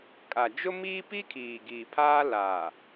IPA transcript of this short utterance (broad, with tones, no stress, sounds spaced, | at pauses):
kʼ a˨ d͡ʒ ʊ˦ m iː˦ p i˦ kʰ iː˨ ɡ i˨ pʰ aː˦ l aː˨